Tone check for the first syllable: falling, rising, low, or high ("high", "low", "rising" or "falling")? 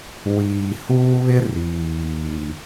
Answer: low